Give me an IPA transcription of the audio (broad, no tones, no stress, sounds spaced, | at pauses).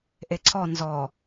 ʔ e ǀʰ ɔ n z ɔ